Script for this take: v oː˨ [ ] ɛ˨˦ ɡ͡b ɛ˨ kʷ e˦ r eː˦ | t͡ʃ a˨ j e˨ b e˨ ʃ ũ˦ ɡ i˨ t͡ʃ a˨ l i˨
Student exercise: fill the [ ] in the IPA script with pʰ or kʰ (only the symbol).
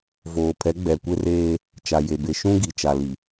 pʰ